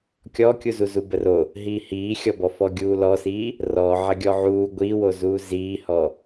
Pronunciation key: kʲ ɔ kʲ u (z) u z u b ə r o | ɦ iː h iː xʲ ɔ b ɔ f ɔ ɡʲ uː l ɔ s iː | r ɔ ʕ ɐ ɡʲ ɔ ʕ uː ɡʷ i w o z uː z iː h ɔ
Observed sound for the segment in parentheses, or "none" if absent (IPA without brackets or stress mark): z